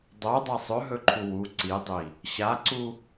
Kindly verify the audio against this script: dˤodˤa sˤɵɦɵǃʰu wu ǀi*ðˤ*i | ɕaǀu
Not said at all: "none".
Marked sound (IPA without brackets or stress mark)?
dˤ